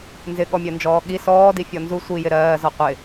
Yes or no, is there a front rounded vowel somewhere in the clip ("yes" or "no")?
no